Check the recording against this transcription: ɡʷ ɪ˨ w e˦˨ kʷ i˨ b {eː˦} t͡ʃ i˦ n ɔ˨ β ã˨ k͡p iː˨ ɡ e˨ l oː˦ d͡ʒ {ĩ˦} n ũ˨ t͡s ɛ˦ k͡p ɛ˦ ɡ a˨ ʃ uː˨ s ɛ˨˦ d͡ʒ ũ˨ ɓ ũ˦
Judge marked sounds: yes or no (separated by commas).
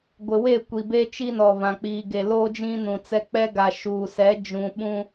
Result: yes, yes